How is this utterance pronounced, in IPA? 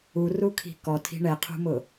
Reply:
u r u kʰ i̤ k ɔ tʰ i̤ ɳ ɛ qʰ ṳ m ʊ

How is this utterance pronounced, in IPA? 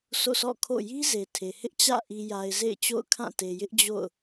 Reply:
s o̰˦˨ s ɔ̰˦˨ kʰ o̰˦˨ j i˦ z e˨ tʰ e˨ h ɪ˦ ʔ t͡ɕ ä̰˦˨ ʔ i˨ j a˨ ɪ̯ z ḛ˦˨ ɪ̯ t͡ɕ o̰˦˨ ʊ̯ kʰ ã˦˨ t e˨ j ɪ˦ ʔ d͡ʑ o̰˦˨ ʊ̯

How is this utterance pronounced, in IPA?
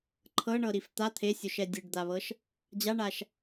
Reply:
ǃʰ ɤ ɳ ɤ ɾ i f t̪ a t̪ʰ e sʲ o ʃ ɛ dʲ ɯ ɖ d̪ a β ɤ ʃ | d͡ʑ a ɳ a ʃ

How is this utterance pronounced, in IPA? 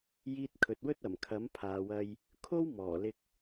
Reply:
j iː˧ t̚ kʰ ɵ˨ t̚ w ɵ˥ t̚ ɐ˨˩ m kʰ ɐ˨˥ m pʰ aː˨ w ɐ˧ j | kʰ o˥ w m ɔː˨˩ l ɪ˧ k̚

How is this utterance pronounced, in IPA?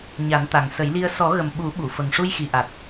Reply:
ɲ a˨˩˦ n t̪ a˨˩ ŋ s ə˨˩˦ j l i˧ ə̯ s ɔ˨˩˦ ɣ ə˨˩ m ɓ u˨˩˦ ɓ u˨˩˨ f ə˨˩ ŋ ʂ u˧ j x i˨˩ ʔ a˨˩ t̚

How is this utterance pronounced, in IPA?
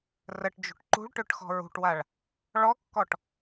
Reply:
r ə ʈ d͡ʒ ṳ ʈ ǃ ṳ ɭ ʈ ø ʈ x ɔ̤ ɹ ṳ ʈ w a ɭ | ɭ ɔ kː ɔ ʈ

